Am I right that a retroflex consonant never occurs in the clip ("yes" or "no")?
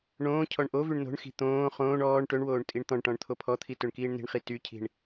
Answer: no